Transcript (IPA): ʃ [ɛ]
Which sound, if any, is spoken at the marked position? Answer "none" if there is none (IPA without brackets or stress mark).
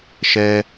ɛ